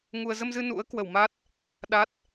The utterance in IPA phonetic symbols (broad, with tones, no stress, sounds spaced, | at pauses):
ŋ u˧ ə̯ z ə˧ m z ɨ˧ n ṵ˧˥ ə̯ k w ə˧˩ w m a˦˥ t̚ | ɗ a˦˥ t̚